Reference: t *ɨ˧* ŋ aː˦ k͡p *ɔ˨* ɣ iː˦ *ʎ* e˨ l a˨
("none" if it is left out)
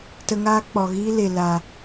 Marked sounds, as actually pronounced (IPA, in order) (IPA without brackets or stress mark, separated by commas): ə˧, ɔ˨, l